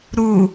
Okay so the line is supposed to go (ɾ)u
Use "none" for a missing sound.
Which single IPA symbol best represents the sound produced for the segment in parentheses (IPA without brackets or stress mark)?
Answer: ɾ